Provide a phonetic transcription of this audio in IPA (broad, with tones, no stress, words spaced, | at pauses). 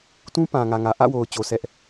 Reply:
tũ˦pã˨ ŋä˨ŋä˨ ʔä̰˦˨wo˨ʊ̯t͡ɕo˨ sɛ˦ʔ